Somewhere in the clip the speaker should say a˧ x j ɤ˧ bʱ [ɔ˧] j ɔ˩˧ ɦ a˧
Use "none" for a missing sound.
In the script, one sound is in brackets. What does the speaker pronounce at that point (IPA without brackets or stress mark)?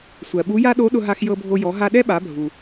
o˧